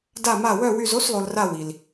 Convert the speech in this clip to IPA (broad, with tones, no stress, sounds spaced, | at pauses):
d a˦˨ m a˦˨ w œ˦˨ w y˦˨ z o˧˥˧ s lˠ o˨ l r a˦˨ w i˨ l